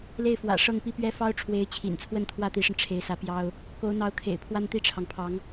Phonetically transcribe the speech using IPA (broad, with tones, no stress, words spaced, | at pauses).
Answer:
le˥˩ɪ̯fwä̰˨˩ʂɤ˥˧ŋ pi˥˩pɥɛ˥fɑ˥ʊ̯ʈ͡ʂʰwe˧˥ɪ̯ t͡ɕʰḭ˨˩nt͡sʰwə˥˧n t̪ʰwä˥˩t̪i˧˥ʂə˧n ʈ͡ʂʰe˧˥ɪ̯sä˧˥ pjɑ˥ʊ̯ | ko˧˥ʊ̯n̪ɑ˧˥ʊ̯kʰḛ˨˩ɪ̯pʰwa˥n t̪i˥˩ʈ͡ʂʰɑ˩ŋpʰɑ˧˥ŋ